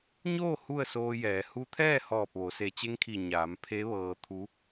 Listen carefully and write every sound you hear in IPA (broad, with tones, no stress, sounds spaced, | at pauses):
ɲ oː˥˨ h u˥˨ ə̯ s oː˧ j ɛː˩˧ h u˧ t̪ʰ ɛː˥˨ h ɔː˧˩ p̚ ʋ o˩˧ s e˧˩ t͡ɕ e˧˥ ŋ kʰ i˧˩ ɲ aː˩˧ m pʰ e˧˥ ʋ ɤː˧ t̪ʰ u˧˥